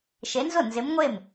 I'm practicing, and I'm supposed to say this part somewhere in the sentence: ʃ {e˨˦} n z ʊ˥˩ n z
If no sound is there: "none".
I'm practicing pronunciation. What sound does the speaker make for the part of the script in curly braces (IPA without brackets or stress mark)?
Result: e˨˦